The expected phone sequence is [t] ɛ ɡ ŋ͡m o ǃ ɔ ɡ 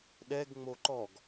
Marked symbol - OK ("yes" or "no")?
no